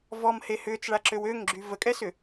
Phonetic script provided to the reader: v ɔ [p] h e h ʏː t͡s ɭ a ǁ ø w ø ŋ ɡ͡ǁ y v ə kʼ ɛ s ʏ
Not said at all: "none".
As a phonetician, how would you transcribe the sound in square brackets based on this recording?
m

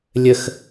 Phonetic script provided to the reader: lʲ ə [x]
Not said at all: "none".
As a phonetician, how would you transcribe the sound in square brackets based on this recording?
x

